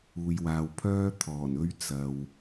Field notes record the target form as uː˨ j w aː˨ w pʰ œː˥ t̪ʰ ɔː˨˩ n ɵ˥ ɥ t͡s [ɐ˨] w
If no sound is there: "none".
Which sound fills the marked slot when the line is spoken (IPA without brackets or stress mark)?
ɐ˨